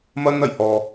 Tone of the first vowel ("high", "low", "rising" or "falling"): high